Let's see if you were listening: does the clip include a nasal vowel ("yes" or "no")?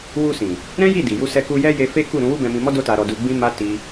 yes